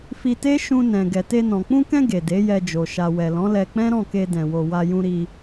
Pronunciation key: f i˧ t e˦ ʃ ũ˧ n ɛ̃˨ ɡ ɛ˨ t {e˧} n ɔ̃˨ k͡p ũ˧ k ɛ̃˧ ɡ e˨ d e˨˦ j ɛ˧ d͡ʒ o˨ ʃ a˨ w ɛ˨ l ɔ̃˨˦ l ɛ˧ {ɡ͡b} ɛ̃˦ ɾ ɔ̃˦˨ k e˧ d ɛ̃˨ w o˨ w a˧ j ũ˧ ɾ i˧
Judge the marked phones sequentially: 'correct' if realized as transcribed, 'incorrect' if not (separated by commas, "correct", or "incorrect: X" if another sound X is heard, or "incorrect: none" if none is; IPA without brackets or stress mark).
correct, incorrect: k͡p